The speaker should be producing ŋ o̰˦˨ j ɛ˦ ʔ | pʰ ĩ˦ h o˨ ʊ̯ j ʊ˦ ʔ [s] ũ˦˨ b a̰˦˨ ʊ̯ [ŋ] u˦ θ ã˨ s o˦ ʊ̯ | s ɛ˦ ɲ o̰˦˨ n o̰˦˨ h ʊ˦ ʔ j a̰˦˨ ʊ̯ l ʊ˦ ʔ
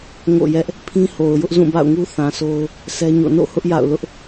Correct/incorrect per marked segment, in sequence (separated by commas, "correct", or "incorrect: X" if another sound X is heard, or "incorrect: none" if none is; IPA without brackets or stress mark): incorrect: z, correct